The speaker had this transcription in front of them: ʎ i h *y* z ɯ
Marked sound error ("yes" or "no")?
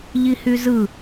no